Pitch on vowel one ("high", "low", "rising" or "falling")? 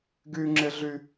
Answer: high